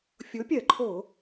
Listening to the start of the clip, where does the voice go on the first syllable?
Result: rising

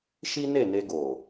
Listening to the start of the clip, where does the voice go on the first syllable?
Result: high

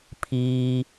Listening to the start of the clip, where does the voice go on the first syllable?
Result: high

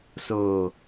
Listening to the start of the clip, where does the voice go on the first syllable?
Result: low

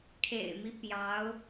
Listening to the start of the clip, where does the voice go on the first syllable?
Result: low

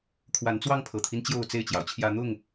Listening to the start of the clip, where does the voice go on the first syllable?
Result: rising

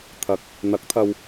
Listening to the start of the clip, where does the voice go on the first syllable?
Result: low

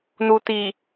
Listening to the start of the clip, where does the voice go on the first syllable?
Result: low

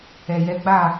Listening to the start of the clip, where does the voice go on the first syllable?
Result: low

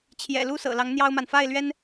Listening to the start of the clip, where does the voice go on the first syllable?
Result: low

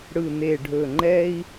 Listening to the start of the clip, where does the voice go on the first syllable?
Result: low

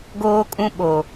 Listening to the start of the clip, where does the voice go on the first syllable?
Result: high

